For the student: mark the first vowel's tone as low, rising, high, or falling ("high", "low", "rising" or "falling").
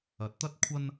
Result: rising